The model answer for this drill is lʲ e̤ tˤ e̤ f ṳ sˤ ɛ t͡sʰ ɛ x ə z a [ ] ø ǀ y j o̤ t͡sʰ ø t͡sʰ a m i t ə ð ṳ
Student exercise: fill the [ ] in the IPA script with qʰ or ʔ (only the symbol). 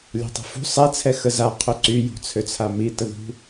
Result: qʰ